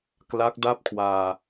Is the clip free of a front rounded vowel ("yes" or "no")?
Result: yes